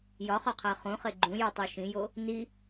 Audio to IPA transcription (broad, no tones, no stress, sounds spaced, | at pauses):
j ɒ χ ɒ qʰ æ χ ũ χ e ɡ͡ǃ ũ j u tˤ o ʃ ĩ j o | n i